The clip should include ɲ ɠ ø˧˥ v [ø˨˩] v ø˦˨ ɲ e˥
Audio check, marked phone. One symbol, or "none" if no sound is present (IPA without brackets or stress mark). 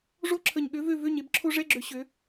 ø˦˨